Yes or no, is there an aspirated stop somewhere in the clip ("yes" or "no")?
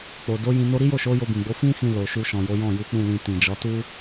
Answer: no